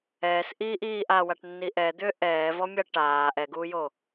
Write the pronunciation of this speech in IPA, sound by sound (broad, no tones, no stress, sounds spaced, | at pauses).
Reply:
ɛː s ʔ iː ʔ iː ʔ a w a ʈ nː i ʔ ɛ d̪ ʏː ʔ ɛː v ɔ mʲ a ʈ aː ʔ ɛ ɡ uː j o